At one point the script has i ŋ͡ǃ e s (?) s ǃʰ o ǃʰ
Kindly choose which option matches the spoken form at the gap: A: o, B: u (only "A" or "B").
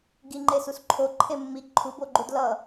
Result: B